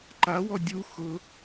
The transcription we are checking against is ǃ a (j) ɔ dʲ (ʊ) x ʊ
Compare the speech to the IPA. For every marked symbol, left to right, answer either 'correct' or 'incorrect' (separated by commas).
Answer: incorrect, incorrect